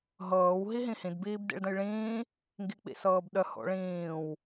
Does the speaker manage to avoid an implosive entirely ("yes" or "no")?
no